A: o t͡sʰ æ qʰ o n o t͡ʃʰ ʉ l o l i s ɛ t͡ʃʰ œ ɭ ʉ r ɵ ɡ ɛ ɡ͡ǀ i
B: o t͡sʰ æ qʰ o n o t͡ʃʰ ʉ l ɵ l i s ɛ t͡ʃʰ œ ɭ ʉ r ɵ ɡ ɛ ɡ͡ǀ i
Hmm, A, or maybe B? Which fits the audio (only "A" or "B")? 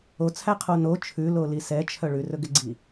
A